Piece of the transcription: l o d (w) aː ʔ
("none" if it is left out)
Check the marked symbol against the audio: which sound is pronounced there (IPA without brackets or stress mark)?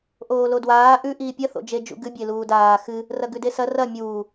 w